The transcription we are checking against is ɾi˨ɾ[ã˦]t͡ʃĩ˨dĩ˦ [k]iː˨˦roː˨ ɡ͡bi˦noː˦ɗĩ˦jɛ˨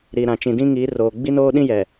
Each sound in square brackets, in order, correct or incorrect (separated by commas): incorrect, incorrect